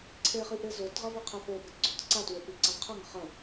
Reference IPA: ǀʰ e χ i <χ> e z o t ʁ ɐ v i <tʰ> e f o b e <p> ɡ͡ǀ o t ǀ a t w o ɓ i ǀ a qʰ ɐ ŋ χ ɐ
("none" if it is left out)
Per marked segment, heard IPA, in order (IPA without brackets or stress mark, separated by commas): ʔ, qʰ, t